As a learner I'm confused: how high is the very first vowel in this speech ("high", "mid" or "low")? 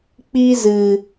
high